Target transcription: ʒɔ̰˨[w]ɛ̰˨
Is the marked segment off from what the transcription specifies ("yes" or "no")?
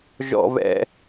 yes